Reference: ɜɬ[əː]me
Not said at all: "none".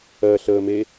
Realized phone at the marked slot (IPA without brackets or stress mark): əː